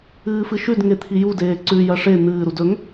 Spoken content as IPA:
ɨː f ɨ ʃ ʉ d ŋ e t̪ʰ i j u d eː ǀ ʉ j ɐ ʂ e n̪ ɨː ɾ u d ɵ ŋ

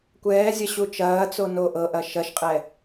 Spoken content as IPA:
kʷ ɛː zʲ ɐ ɕ u t͡ʃ ɐː t͡s o n o ʔ ɤ ʔ ɐ ʃ ɐ ʃ qʼ ɛ

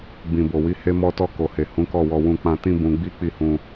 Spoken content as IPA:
b ĩ˨ b o˨ w i˨˦ h e˧ m ɔ˧ t ɔ˧ k o˨ h e˨ h ũ˨˦ k ɔ˦˨ w ɔ˧ w ũ˧ k͡p ã˧ t ĩ˦ b ũ˧ ɡ͡b i˦ k͡p i˦˨ h ũ˧

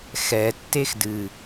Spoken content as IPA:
x ɛ tː e x d ɨ

